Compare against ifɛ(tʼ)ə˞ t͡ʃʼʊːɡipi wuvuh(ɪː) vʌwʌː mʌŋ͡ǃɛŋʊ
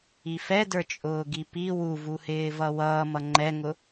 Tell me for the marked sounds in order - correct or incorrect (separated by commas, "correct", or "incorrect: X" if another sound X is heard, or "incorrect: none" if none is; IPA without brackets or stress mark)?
incorrect: d, correct